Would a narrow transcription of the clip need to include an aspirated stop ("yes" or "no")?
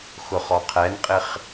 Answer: yes